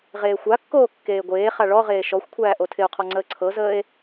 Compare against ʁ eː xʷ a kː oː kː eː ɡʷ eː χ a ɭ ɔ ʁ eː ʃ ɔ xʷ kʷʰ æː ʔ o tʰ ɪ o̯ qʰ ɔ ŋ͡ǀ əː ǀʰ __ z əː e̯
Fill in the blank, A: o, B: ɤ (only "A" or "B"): B